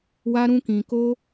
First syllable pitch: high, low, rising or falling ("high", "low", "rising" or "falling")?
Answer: high